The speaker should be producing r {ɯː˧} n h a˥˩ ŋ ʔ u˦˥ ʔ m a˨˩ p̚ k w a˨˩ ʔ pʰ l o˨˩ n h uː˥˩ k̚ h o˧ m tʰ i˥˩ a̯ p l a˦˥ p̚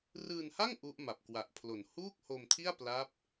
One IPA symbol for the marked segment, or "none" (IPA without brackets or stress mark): ɯː˧